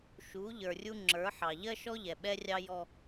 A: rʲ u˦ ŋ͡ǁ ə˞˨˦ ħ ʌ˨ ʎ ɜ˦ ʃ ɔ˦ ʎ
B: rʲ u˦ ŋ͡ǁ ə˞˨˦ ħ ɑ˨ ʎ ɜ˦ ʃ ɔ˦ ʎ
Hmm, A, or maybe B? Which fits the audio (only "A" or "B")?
B